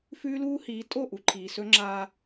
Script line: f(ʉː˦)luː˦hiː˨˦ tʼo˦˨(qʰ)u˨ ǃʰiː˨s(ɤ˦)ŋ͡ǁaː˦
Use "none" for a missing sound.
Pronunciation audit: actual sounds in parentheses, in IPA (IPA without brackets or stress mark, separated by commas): ʉː˦, ʔ, ɵ˦